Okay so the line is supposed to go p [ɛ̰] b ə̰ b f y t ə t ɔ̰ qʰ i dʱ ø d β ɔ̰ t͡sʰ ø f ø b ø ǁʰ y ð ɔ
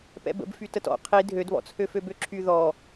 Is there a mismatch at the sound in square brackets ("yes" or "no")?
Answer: no